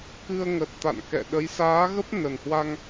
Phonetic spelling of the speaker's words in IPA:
kɨ˧ə̯ŋə˨˩t̚ t̪a̰˧˨nkɛ̰˧˨ɗə˨˦j saː˨˦ɣə˦˥p̚ nə˨˩nhwa˧ŋ

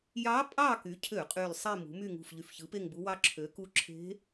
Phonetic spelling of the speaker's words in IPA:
jɑ˧˥pʼɑ˦˨ky˩˧ cʰø˧˩˧qʼy˨˩l sˤi˦˨mṳ˩˧my˦˨ ŋṳ˨˩f ʎy˨˩fçɯ˩˥pe˦˨ŋbu˧˥ wɑ˧˥ǁʰø˩˧ku˧˥ ǁʰe̤˧˥

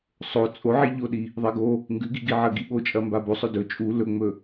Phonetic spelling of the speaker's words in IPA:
sˤo t͡sʼo ʕiʎoɗi | ðˤeɡo | ŋɡʉɡiɡiʕɐ ɡiɓot͡ʃʼɐ mbabosˤɵ dɵ t͡ʃʼu lɵŋ͡mɵ

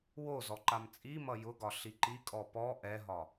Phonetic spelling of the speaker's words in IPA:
wozɔ ǃamt͡sʼimʌ jʊɡɒ ɬiǃikʼɔ pɔ ʔɛɦɒ

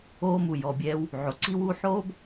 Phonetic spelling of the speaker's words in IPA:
oː˥mu˩ jɔ˩bʲɛː˧w | ʕo˩ǀi˥wuː˥ ħoː˥b

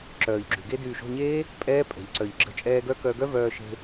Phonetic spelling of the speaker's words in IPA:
ǁœː˨ʎɡ͡ǁy˨ɡe˦ dyː˨ʃo̤˦˨ɲeː˦ | pʼɛː˦pʼɛ̤˨ʎ ǀœ˨ʎ ɡ͡ǁə̤˧t͡ʃʼɛː˧ɡœ˦ kœ˧ɡœ˦ vœː˧ʃe̤˧

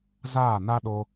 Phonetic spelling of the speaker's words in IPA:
zaː˦˨na˦ ɗo˧

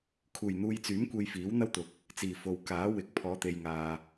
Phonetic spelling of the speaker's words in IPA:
kʰuː˨˩jn̪uː˨jt͡syː˨˥m kʷe˧jfiː˨˥wn̪ɐ˥wt̪ʊ˨k̚ | t͡siː˨˩ fo˨w kaː˨˥ wɪ˨˥k̚ pʰɔː˨˧t̪e˨jŋaː˨

